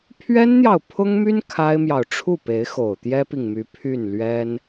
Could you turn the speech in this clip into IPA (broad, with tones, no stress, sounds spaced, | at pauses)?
pʰ ɥ ɛ˥ n n̪ j ɑ˨ ʊ̯ pʰ ʊ˥ ŋ m y˥ n kʰ a˥ ɪ̯ m j ɑ˨ ʊ̯ ʈ͡ʂʰ u˥˩ p e˧˥ ɪ̯ x o˨˩ ʊ̯ t̪ j ɛ˥ p i˨ ŋ m y˧˥ pʰ y˥˩ n l ɥ ɛ˥ n